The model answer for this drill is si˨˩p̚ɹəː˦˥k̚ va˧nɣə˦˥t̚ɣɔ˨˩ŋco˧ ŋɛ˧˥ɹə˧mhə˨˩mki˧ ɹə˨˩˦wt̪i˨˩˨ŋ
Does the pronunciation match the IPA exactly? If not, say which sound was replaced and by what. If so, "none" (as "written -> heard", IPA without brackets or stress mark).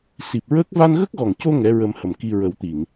t̚ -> k̚